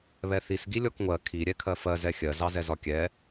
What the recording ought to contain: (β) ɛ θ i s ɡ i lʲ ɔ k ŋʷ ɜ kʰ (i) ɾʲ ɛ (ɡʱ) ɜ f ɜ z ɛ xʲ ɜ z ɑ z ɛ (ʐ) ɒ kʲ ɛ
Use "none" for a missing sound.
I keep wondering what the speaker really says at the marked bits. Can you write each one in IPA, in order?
β, i, kʰ, z

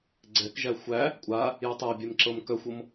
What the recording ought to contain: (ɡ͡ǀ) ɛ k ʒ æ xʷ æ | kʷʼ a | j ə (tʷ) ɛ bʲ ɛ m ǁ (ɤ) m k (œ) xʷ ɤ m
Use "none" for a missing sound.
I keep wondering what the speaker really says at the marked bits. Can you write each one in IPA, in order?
ɡ͡ǀ, tˤ, ɤ, œ

